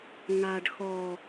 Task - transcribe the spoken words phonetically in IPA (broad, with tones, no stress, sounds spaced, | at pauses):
ŋ a˨ ɖ x ɔ˨